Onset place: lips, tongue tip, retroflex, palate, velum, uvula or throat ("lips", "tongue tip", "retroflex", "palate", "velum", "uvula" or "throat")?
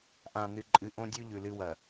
throat